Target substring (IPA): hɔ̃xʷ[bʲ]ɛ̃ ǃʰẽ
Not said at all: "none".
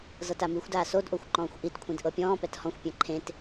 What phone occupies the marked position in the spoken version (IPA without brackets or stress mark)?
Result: pʲ